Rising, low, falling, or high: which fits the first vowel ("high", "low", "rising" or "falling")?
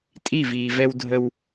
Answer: falling